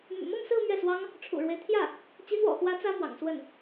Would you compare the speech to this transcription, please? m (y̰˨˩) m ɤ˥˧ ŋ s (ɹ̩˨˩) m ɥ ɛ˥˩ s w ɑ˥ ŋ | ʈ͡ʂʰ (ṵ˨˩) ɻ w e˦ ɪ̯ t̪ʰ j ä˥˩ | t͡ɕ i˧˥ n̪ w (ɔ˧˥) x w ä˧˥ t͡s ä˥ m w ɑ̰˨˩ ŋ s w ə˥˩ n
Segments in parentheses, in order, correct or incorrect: correct, incorrect: ɹ̩˥˧, correct, incorrect: ɔ̰˨˩

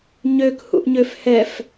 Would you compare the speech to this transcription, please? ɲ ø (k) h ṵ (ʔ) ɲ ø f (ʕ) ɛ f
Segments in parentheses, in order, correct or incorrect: correct, correct, incorrect: h

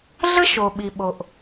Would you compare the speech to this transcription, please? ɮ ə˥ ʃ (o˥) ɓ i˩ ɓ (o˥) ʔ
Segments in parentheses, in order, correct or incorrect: incorrect: o˩, incorrect: o˩

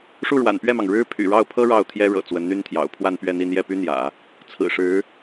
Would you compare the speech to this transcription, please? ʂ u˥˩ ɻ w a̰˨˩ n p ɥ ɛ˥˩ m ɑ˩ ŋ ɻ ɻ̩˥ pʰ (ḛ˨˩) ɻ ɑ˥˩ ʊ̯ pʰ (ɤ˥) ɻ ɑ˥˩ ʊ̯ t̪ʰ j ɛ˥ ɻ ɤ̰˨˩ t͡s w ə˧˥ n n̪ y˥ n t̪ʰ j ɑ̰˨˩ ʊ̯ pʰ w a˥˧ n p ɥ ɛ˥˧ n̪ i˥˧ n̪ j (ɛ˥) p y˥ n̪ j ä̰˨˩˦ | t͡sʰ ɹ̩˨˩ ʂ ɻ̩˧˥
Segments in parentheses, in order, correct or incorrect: incorrect: y̰˨˩, correct, incorrect: ɛ˥˩

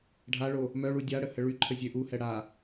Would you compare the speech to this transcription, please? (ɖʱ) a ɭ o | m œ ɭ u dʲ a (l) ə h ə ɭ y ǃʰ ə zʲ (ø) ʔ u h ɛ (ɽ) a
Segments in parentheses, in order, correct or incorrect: correct, incorrect: ɽ, correct, correct

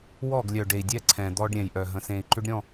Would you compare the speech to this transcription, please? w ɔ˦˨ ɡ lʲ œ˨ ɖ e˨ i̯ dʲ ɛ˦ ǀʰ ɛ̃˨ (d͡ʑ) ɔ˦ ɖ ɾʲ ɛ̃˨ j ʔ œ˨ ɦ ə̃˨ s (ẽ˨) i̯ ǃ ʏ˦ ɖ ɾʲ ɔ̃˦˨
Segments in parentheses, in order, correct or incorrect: incorrect: d̪, correct

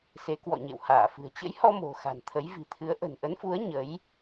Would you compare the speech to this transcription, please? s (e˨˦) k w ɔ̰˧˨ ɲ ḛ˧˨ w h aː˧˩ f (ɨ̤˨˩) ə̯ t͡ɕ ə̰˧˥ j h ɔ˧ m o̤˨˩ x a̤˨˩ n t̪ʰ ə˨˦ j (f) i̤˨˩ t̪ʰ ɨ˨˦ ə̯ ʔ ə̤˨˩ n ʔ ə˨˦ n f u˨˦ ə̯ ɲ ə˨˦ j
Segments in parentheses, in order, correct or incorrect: correct, correct, incorrect: v

